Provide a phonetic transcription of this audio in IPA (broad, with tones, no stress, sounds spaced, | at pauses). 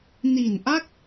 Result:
n i˨˩ n ʔ a˥˩ k̚